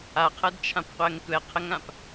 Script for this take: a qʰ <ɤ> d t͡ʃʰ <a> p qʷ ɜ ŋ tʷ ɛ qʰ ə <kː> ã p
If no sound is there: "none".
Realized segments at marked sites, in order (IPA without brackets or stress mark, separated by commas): ɤ, ã, ŋ